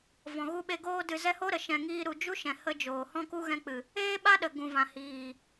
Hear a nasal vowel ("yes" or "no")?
yes